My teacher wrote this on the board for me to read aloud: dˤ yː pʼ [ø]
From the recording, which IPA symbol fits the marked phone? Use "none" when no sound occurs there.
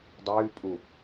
u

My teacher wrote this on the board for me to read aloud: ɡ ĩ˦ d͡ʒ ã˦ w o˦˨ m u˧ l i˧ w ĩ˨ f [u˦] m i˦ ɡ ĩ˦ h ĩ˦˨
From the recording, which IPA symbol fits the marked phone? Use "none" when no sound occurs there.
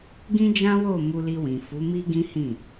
u˨˦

